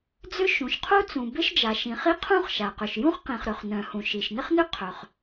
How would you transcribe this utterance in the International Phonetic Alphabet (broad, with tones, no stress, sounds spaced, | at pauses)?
d͡z ʏ˥ ʃ ũ˩ ʃ qʰ u˥ t͡s ũ˩ b ɪ˥ ʃ d͡ʒ a˩ ʃ ĩ˩ χ i˥ qʰ ũ˥ χ ʃ a˩ q ʏ˩ ʃ j ũ˥ χ q ĩ˩ χ ɾ ø˩ χ n œ̃˩ h ũ˩ ʃ i˩ ʃ n ɪ˥ χ n ʏ˥ qʰ œ˩ χ